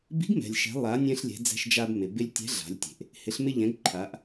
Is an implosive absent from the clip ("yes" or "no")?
yes